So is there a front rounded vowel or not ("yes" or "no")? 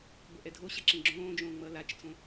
no